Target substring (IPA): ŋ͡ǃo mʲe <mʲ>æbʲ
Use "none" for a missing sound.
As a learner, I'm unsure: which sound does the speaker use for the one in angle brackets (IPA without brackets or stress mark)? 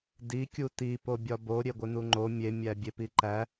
mʲ